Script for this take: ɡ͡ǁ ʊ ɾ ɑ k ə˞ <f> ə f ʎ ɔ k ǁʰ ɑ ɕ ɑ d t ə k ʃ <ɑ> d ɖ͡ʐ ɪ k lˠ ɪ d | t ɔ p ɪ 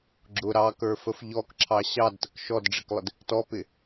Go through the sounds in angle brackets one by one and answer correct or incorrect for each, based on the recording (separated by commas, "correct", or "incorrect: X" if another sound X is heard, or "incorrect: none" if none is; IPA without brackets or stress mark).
correct, incorrect: ɔ